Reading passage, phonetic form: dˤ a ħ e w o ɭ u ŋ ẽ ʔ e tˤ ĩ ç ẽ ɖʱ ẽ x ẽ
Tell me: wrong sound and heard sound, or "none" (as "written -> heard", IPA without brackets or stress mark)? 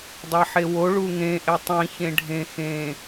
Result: none